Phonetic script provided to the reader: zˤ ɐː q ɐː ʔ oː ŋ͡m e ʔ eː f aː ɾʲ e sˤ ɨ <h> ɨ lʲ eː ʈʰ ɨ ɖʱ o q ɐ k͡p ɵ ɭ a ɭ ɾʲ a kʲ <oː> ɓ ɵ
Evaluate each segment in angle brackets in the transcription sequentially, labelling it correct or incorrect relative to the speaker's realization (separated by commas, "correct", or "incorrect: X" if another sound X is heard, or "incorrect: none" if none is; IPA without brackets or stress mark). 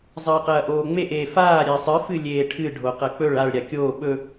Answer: incorrect: f, correct